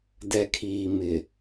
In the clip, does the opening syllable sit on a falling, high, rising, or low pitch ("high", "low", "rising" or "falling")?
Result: low